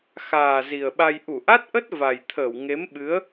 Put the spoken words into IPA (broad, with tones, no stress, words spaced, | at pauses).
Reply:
xaː˨˩ zi˨˩ə̯ɓa˧j ʔu˧˩ʔa˦˥t̚ʔə˦˥t̚ va˨˩jt̪ʰəː˧˩w ŋe˨˦mɓɨ˨˦ə̯